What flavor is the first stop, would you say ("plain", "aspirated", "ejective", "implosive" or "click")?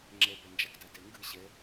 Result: click